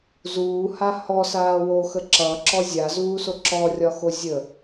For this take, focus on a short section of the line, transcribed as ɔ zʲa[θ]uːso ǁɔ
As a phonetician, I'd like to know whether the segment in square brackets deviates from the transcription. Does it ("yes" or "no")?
yes